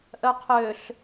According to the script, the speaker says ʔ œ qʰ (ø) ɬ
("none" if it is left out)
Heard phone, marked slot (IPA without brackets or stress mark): ø